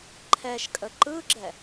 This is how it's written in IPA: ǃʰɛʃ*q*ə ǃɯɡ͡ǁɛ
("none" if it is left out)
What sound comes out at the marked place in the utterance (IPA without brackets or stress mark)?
kʼ